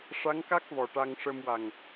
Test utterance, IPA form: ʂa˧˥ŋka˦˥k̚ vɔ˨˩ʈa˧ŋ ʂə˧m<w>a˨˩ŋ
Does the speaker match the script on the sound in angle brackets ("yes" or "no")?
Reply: yes